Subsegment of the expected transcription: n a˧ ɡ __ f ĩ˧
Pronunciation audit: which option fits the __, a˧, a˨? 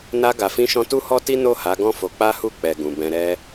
a˨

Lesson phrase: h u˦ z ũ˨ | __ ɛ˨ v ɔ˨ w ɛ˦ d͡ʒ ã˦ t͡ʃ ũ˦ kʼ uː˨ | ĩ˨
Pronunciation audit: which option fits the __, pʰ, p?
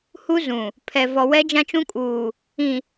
pʰ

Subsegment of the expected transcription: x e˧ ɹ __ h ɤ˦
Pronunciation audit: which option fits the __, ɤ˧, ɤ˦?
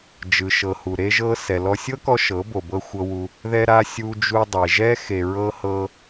ɤ˦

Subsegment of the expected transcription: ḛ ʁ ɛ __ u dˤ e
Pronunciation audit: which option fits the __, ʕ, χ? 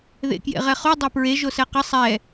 χ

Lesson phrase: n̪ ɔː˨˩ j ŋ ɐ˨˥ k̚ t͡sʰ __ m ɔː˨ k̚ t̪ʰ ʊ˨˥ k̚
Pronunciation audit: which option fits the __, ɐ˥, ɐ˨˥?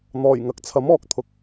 ɐ˨˥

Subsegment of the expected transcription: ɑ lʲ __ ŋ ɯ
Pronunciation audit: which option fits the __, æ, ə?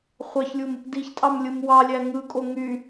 æ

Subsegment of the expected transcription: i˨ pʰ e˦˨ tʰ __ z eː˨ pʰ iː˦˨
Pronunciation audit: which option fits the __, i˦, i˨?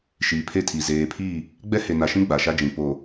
i˨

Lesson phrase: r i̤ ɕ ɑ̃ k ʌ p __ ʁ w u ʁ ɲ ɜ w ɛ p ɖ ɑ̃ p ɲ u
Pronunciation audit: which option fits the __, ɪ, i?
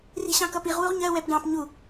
i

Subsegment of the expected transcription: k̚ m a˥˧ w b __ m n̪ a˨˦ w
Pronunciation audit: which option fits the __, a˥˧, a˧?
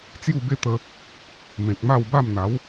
a˥˧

